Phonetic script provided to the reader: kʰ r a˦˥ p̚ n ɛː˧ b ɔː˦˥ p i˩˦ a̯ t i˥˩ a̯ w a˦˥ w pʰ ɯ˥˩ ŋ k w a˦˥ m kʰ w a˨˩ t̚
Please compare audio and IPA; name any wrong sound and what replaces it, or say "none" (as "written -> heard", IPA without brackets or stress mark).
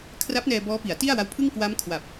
t̚ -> p̚